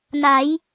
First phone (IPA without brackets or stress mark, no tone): n